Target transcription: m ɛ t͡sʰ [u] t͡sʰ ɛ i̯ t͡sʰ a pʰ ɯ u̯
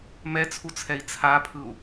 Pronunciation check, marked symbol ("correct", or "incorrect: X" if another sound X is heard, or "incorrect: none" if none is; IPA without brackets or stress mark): correct